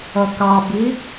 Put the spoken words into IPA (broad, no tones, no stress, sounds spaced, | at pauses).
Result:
ʌ k ɑ b i